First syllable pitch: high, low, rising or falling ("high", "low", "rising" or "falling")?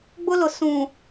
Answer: high